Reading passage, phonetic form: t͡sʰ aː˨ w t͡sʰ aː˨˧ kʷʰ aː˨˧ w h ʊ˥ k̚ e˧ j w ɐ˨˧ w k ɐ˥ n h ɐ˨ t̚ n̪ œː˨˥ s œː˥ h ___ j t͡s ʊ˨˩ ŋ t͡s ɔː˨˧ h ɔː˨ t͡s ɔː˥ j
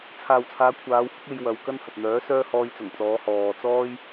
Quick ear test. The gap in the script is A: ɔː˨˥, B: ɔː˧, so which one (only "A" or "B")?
B